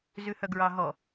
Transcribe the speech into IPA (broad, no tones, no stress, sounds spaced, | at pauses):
z ʉ h œ ɡ ɹ ɑ ɦ ɔ